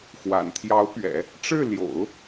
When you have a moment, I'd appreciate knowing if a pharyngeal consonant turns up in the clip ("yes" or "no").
no